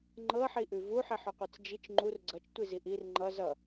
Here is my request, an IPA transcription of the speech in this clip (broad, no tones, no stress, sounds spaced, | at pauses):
ŋ͡ǃ ɤ ħ i ʔ ʉ v u ħ i ħ ʉ qʷ ɤ t͡s d͡ʒ i t͡ʃ ŋ͡ǃ u r ɡ͡ǀ ʌ t͡ʃ tʷ i z i ʔ i r ŋ͡ǃ ʌ z ʌ